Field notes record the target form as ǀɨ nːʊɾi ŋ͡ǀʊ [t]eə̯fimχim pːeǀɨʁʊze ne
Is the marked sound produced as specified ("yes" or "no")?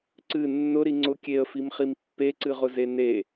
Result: no